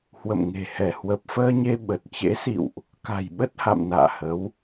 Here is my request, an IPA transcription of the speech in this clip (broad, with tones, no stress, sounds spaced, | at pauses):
h w ə̰˧˨ m ŋ e̤˨˩ h ɛ˧˩ h w ə˨˩ p̚ f əː˧ ɲ e˧ ɓ ə˨˩ t̚ t͡ɕ ḛ˧˥ s ḭ˧˨ w ʔ | k a̤˨˩ j ɓ ə˦˥ t̚ h a̰˧˨ m n a̰ː˧˨ h ə˨˦ w